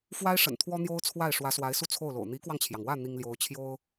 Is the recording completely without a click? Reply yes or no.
yes